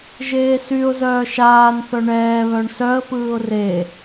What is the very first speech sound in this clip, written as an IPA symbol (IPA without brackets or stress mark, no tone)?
ʒ